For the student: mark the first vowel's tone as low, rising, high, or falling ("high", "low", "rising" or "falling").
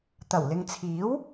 low